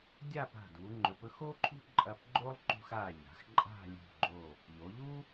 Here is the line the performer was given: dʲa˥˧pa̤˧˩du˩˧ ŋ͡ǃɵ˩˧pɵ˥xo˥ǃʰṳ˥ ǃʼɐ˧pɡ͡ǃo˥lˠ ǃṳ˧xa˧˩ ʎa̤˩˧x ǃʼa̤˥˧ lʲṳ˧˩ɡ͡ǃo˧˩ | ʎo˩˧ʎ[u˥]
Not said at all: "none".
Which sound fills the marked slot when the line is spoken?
u˥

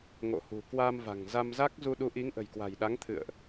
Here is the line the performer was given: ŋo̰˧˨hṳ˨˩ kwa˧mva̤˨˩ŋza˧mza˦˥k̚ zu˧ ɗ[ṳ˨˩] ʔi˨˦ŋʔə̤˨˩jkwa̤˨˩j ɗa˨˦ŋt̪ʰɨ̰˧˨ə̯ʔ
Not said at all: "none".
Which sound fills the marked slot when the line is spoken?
u˨˦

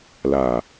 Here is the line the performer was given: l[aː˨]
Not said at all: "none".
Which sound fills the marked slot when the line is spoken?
aː˨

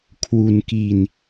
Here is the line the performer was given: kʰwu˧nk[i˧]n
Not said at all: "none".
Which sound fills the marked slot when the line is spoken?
i˧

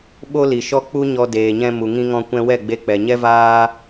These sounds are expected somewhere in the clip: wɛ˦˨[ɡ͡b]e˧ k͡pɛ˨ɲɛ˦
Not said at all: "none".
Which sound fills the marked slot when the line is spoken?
ɡ͡b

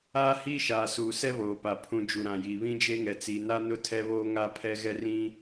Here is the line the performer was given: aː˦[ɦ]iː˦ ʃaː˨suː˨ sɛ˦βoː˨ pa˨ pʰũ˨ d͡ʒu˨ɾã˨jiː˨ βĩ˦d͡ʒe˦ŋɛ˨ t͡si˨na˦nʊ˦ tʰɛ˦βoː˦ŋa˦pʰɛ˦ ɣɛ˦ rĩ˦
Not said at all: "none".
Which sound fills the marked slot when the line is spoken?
h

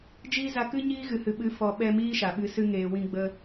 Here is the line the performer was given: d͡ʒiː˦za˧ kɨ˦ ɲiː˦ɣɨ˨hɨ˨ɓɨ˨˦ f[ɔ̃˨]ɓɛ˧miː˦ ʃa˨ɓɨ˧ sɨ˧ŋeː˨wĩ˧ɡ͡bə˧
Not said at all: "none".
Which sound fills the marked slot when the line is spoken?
ɔ˨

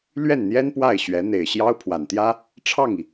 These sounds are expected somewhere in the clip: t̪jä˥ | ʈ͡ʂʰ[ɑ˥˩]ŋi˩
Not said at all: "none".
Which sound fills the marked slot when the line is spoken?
ɑ˥˩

